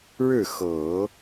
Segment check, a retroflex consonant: present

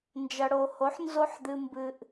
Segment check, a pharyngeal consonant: present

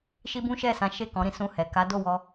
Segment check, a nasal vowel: present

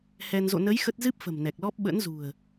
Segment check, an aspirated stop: absent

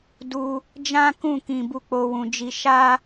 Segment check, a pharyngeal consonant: absent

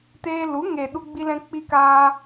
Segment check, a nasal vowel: present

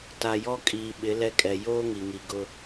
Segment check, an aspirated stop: absent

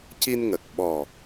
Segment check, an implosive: present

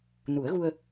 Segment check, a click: absent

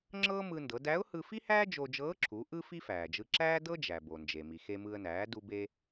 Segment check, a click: present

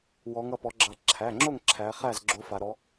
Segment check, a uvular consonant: present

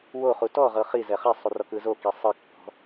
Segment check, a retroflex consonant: absent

